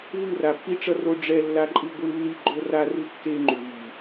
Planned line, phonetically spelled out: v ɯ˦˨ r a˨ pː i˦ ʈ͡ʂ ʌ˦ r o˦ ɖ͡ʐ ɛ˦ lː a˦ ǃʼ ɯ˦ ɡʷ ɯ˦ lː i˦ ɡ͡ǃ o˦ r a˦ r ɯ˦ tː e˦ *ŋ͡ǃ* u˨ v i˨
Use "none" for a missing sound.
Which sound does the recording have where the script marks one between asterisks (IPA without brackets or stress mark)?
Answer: ŋ͡ǃ